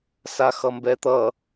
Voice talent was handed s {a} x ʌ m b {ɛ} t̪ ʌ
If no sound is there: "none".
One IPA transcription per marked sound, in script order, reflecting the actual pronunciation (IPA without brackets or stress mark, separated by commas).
a, ɛ